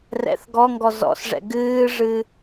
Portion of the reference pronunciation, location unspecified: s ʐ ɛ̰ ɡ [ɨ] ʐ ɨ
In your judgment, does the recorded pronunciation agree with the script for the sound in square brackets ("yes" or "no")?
no